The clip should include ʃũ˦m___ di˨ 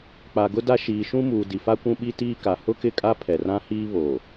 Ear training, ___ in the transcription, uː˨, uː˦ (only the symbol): uː˨